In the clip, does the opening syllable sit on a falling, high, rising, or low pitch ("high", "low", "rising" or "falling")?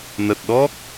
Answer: low